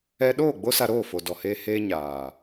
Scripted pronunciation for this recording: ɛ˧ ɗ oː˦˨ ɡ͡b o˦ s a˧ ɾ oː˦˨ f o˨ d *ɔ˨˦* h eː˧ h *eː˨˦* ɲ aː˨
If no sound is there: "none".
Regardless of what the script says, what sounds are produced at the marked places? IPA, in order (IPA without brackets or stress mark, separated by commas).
ɔ˨, eː˦